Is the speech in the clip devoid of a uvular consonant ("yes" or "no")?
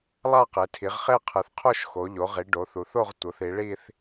no